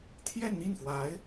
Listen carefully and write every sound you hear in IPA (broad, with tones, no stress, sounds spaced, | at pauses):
t̪ʰ j ɛ˥˧ n n̪ i˥˩ n f w a˧˥ ɪ̯